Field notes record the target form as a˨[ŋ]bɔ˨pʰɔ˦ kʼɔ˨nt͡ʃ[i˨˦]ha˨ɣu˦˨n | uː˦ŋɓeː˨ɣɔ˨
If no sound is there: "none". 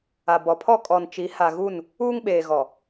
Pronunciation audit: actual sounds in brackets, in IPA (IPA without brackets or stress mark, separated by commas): none, i˨˦